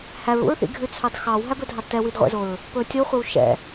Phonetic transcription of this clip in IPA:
h æ ɹ ṵ ɹ θ ḭ ɡʱ ʉ t͡sʰ ɑ d x ɑ w ɦ æ b ɵ dʱ ɑ d t ɛ w i d ʁʷ ɛ̰ z o ɹ | p ɵ tʲ o χʷ ɛ w ʃ ɛ̰

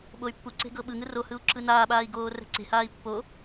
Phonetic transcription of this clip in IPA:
ɓ o y̯ pː u ǀ e̤ ɡ ɤ ɓ ɯ ŋ ɯ r o h ɯ u̯ ǁ ɯ n aː ɓ aː i̯ ɡ oː r ɛ̤ ǀ e̤ h aː i̯ pː o

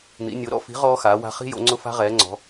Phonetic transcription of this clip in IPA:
n̪ ḭ˩˥ nʲ o˩˥ ɾ ɔ̰˦˥ f i̤˩˥ ʁ ɔː˦˥ x aː˩˥ w a̤˦˥ χ i̤˦˥ j o̰˩˥ ŋ͡ǀ ʊ˦˥ f a̤˦˥ ʁ ɛː˩˥ ŋ͡ǀ ɔ̤˩˥

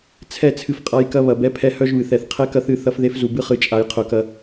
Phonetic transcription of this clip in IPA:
t͡sʰ ɛ˦˨ t͡sʰ ɨ˦ f qʼ a˦ j k ɐ˦ β ɐ˨ b ɛ˦ pʰ ɛ˦ h œ˦ ʒ β ɨ˨ θ ɛ˨ θ qʰ ɛ˦ k ɐ˦ θ ɨ˦˨ θ ɐ˦ f ð e˦ f z u˨ b ɨ˦ χ ɨ˨ t͡ʃʼ a˨ j qʰ œ˨ k ɐ˦

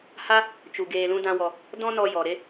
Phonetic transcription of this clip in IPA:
h a˦ | t͡ʃ u˨ ɡ eː˧ l ũ˦ d ã˦ w ɔ˧ | d ɔ̃˦ n ɔ˧ j ɔ˨ ɾ e˦

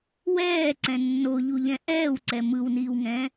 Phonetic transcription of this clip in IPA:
w ɛː ǀ ɛ̃ nː o ʎ u ʎ ɛ̃ ʔ ɛː w ǀ ɛ m ɯ w n iː w ŋ ɛ̃

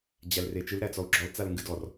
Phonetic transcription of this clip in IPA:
d͡ʑ æ l r e t͡ʃ ɨ l ɾ æ t͡s ɔ u̯ ɡ͡ǁ ɔ l t͡s a l ŋ ɡ ɨ d ɔ r

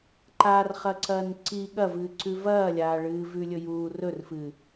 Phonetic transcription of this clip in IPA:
ǃ a r χ ɐ ǀ ɐː n ǀ i ɠ ɐ v ɨː ǀ ʉ v ɐː lʲ aː ɭ ɨː v ʉ lʲ ɵ j uː r ɵ r f ɨ

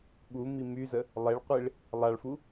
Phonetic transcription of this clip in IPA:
ɓ u m i m y z ə | lˠ e ɭ qʷ i ɭ | lˠ a ɭ f u

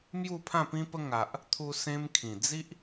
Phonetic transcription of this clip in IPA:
m j u˥˧ pʰ ã˥˧ p ĩ˦ p ə˦ ŋ a˨ ʔ | t̪ʰ u˧ s ẽ˧ m kʰ ĩ˨˩ d͡z i˦ ʔ

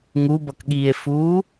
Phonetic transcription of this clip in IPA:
ŋ u b ʌ k ɠ iː e̯ f uː

